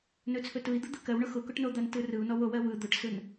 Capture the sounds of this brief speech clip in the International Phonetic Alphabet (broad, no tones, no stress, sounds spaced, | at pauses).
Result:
n ɵ t͡sʰ ɵ t ɯ i̯ d̪ ɯ d̪ ɯ k ɜ w ɳ ʊ x ʊ k ʊ ʈ n o d̪ a n t ɯ r ɯ u̯ n ɔ w o w ɜ w ɯ d̪ ʊ ʈ s ɯ n